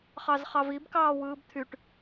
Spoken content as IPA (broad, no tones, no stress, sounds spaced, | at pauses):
χ ɑ z χ ɑ v i b k ɑː w ɯː b t̪ʰ y ʈ